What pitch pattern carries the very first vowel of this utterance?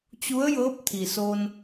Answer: rising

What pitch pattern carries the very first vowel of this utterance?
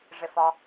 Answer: low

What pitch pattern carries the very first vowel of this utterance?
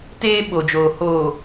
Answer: high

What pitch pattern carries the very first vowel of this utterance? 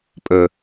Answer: low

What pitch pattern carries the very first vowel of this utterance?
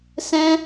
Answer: high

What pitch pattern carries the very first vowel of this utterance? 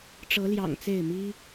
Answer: rising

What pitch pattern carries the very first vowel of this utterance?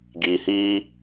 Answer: low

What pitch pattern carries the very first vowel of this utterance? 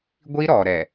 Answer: high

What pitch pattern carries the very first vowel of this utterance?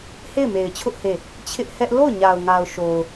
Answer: falling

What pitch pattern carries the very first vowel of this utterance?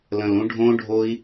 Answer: low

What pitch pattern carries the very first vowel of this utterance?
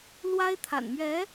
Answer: high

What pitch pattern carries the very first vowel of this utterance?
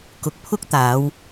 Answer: low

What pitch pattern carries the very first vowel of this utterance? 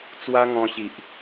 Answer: high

